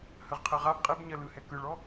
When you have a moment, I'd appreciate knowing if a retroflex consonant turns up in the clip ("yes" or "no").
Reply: yes